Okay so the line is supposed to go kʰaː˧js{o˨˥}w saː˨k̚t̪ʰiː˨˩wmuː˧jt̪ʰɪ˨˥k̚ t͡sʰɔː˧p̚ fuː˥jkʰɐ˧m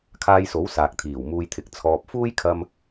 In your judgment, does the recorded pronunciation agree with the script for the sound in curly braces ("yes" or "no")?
yes